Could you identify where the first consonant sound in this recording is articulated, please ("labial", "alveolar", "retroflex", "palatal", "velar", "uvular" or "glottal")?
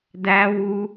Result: alveolar